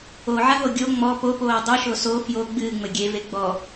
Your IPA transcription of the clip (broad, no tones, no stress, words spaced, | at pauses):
oʕaɦo ɡʲo ŋ͡mɔ popoː dˤɨʃo so fjo ɡ͡bɨːŋ͡mɘ ɡʲeve ɡ͡bɔ